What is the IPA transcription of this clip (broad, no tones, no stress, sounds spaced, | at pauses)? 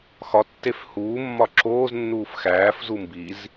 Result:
x ɒ tː e f h uː mː ɒ ǁ oː z nː uː f x æː f z u m b i z